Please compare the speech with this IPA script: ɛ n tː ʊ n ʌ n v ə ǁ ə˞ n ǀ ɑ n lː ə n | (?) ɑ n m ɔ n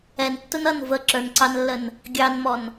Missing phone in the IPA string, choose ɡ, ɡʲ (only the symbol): ɡʲ